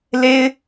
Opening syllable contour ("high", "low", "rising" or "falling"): high